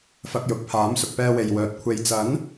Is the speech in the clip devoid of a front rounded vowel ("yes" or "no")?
no